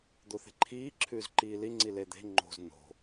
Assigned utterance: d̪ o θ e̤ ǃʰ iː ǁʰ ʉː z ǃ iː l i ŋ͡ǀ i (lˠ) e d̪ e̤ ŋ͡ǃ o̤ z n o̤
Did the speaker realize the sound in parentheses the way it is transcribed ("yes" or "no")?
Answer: no